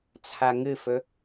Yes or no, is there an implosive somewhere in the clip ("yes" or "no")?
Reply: no